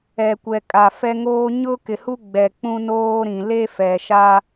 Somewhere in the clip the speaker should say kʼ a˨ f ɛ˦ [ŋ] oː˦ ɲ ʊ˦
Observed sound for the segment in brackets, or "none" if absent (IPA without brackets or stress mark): ŋ